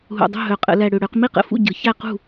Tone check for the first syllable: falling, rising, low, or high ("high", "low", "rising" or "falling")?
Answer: low